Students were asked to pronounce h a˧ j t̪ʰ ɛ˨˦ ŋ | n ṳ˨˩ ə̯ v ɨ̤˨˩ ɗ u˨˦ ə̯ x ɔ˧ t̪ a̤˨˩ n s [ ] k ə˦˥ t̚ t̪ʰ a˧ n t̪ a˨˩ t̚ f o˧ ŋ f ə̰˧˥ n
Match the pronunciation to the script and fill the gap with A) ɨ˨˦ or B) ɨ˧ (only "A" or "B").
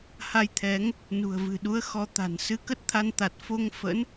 B